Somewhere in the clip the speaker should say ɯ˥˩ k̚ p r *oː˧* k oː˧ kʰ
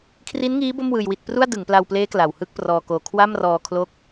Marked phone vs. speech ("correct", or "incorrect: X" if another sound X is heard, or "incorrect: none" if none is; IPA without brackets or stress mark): incorrect: ɔː˧